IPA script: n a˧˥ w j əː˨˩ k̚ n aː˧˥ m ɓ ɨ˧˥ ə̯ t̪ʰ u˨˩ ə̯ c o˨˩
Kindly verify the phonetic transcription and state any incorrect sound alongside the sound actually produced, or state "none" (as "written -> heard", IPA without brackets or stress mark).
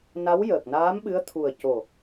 none